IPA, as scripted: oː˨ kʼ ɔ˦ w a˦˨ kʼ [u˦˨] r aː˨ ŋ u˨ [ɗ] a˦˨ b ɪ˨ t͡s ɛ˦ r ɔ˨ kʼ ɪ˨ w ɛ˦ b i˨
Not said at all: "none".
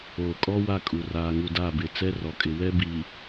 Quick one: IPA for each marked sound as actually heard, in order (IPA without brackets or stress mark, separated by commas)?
u˨, d